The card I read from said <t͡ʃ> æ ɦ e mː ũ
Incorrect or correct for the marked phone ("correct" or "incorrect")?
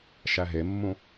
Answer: incorrect